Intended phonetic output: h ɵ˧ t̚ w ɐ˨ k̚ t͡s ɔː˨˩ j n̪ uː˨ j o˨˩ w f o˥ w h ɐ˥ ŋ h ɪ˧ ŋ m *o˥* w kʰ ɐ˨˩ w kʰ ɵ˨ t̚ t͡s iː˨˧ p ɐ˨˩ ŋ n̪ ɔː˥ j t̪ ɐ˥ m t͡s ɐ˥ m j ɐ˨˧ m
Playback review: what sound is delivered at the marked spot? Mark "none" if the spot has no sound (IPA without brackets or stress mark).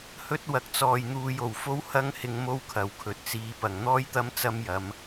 o˥